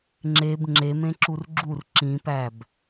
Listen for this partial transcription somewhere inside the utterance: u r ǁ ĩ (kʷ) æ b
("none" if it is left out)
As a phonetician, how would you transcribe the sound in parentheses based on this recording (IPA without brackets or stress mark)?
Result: p